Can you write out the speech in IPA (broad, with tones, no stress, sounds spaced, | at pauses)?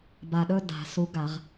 b a˨˩ ɗ ɵ˥˧ d a̤˨˩˦ s u˨˥ ɡ a˨˩˦ ʁ